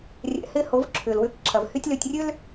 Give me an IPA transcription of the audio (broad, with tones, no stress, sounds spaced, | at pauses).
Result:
rʲ ɛ̰˨ h ɪː˦ h o˨˦ v ǁʰ ʏː˨ l w ʏː˦ k ǁʰ ɐ˨ v h y˦ tʲ l ø˨ tʲ rʲ ø˦ l